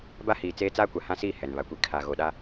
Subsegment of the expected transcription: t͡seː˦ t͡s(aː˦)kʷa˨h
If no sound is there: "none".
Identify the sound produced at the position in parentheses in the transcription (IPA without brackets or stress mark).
aː˦